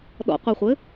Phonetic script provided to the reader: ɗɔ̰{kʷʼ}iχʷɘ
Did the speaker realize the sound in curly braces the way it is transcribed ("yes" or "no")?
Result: no